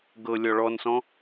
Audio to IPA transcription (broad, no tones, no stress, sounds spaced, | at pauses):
ɡ ɤ lʲ ɔ ɭ ɔ n s ɔ̃